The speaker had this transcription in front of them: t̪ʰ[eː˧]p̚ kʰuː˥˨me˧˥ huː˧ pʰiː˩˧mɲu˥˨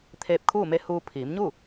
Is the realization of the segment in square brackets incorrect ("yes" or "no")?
no